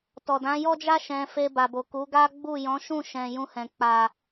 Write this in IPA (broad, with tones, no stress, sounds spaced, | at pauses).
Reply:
t ɔ˨ d ã˨˦ j ɔ˦ d͡ʒ a˦ ʃ ɛ̃˧ f e˧ b a˨ b o˨ k u˨˦ ɡ a˦ ɡ͡b u˦˨ j ɔ̃˨˦ ʃ ũ˦˨ ʃ ɛ̃˨ j ũ˧ h ɛ̃˨ k͡p a˨